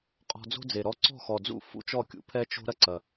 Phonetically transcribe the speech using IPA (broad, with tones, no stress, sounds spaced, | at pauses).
qʼ ɔ̤˧ d͡z o̤˥ d͡z e˨˩ ɾ ɔ˧ ǀ ɔ̤˥˩ x ɔ˨˩ d͡z ṵ˥˩ f ṵ˥ t͡ʃ ɔ˥˩ kʲ ṵ˧ pʰ ɛ˥ t͡ʃ o̤˥ ɾ ɐ˥ ǀ ɐ˨˩